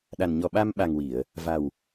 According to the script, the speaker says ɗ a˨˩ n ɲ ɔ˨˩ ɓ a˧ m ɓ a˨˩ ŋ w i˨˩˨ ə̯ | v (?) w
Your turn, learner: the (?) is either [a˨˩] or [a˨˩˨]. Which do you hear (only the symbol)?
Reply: a˨˩